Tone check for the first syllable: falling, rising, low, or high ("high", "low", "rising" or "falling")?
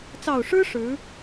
low